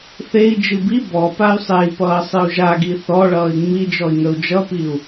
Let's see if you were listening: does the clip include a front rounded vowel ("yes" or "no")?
yes